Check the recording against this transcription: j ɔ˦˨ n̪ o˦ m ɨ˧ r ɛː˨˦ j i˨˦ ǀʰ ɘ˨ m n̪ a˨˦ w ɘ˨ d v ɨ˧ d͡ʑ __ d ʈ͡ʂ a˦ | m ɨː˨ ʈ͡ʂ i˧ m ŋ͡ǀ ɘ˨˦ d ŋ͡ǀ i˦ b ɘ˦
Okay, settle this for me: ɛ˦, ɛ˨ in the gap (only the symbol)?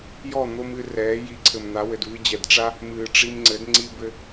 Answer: ɛ˨